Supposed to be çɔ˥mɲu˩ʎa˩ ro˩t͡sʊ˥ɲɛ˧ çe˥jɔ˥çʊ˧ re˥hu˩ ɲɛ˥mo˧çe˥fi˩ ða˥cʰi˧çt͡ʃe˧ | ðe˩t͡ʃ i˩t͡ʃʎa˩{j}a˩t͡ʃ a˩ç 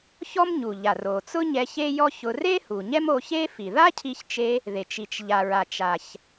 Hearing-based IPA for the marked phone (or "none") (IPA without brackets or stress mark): ɹ